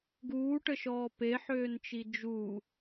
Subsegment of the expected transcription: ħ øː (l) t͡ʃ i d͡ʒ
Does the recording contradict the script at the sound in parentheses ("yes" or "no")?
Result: yes